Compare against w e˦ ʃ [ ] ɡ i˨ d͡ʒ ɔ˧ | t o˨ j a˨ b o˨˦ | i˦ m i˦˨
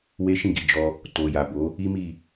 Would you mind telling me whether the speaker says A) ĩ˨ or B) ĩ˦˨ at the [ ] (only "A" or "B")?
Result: B